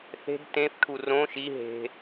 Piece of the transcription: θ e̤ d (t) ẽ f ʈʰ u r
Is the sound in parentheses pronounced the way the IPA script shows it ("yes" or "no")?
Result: yes